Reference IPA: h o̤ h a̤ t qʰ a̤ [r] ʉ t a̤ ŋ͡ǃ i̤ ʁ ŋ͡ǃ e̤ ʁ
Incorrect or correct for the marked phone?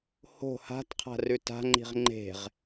correct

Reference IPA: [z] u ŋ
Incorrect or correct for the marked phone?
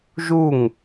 incorrect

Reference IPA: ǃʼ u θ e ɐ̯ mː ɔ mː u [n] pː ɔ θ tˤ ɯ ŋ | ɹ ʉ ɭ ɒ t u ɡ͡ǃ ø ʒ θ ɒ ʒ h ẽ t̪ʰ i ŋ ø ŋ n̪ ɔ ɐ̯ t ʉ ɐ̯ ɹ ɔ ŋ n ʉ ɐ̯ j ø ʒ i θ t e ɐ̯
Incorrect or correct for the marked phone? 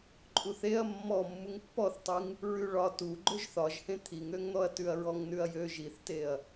incorrect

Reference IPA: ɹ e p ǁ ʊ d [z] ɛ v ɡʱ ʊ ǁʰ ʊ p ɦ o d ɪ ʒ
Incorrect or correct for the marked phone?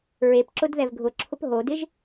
incorrect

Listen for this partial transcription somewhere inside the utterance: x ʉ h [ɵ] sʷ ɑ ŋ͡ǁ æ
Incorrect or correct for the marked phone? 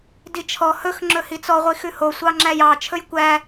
incorrect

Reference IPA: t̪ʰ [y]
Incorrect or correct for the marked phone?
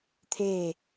incorrect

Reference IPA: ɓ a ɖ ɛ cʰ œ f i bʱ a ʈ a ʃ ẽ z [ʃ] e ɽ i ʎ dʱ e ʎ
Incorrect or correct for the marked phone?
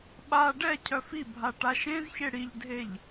incorrect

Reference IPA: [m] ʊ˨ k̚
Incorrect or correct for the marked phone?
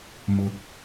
correct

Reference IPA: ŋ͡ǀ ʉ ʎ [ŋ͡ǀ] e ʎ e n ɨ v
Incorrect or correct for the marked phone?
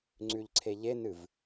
incorrect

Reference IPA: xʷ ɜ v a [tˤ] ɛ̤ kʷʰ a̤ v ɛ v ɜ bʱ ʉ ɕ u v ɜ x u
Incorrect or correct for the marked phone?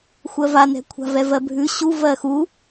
incorrect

